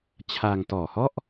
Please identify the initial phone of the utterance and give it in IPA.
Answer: t͡ɕʰ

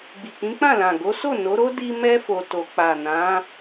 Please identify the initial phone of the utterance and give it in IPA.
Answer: ɡ͡b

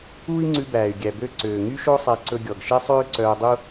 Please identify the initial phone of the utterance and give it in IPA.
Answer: uː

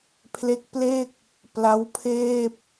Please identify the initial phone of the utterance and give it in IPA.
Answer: pʰ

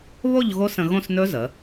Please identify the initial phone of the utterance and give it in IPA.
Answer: β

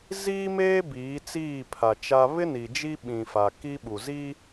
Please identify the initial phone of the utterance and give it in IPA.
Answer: z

